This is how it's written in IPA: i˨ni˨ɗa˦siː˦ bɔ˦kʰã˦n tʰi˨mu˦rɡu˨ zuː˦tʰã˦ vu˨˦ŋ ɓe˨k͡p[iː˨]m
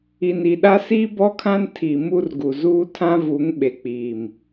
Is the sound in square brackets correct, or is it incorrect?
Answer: correct